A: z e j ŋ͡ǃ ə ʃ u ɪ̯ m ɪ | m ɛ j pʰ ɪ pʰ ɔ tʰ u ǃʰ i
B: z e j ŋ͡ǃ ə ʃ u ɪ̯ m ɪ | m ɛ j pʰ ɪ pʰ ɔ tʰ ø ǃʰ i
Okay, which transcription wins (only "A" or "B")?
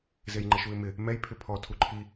A